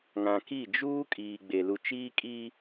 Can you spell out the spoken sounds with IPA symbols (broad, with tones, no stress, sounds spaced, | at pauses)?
ŋ ã˨ k i˦˨ d͡ʒ uː˦ kʼ iː˨ ɡ͡b e˨ l u˨ t͡ʃ iː˦ kʼ iː˦